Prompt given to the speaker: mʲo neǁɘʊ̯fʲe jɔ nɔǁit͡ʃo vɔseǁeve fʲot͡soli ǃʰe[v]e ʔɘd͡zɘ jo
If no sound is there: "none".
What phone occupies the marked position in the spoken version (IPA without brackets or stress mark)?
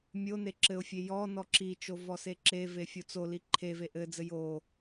v